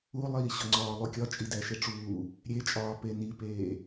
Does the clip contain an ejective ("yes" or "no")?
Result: yes